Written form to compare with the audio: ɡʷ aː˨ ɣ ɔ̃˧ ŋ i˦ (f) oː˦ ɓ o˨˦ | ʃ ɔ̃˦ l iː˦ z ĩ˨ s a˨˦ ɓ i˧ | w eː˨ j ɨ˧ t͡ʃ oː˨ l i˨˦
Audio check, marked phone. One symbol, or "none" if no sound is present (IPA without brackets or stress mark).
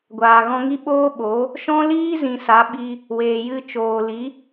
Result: ɓ